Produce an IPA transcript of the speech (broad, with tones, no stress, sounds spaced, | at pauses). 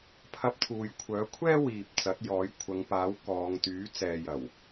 pʰ ɐ˧ p̚ t̪ʰ uː˨ j kʷʰ œː˨˥ kʷʰ ɛː˥ w iː˨ p̚ t͡s ɐ˨˥ t̚ j ɔː˨˥ j kʷʰ ɐ˨˧ ŋ p aː˨˥ w k ɔː˨˧ ŋ t̪ yː˨˥ t͡s ɛː˨ j ɐ˨˩ w